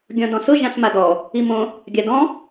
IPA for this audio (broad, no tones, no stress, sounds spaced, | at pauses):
ɡʲ ɔ̃ d ɔ̃ s ʊ ʒ ã ɬ m a d ɔ | i m õ | ɡʲ a d ɔ̃